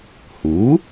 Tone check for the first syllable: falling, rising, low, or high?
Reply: rising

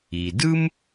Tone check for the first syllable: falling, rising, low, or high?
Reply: low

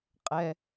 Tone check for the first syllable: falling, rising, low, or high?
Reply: high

